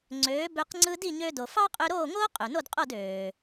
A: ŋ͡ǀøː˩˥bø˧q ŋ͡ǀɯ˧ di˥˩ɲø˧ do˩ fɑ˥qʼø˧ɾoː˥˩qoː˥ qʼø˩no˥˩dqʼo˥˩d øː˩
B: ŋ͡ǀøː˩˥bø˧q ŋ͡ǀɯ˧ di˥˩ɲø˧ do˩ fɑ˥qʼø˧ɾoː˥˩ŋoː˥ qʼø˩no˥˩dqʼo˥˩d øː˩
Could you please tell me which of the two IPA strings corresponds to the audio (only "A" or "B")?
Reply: B